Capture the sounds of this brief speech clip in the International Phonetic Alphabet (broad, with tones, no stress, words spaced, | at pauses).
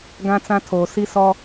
ɡã˦t͡sã˦ tʰoː˨si˦ sɔ˦